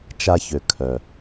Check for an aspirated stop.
present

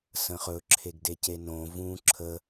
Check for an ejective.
absent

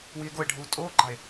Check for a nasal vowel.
absent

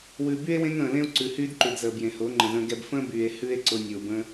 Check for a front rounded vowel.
present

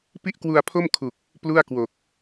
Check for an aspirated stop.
present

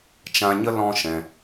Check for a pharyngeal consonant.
absent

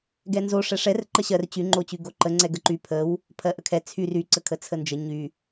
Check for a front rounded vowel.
present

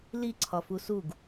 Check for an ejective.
absent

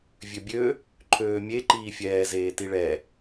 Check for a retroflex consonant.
present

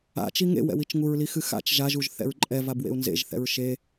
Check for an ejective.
present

